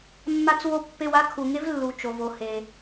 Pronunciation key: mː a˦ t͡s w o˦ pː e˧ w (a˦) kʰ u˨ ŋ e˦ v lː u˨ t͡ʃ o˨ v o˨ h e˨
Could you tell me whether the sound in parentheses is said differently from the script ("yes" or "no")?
no